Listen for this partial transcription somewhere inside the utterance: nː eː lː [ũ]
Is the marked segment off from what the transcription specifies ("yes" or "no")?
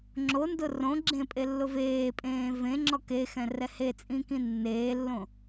yes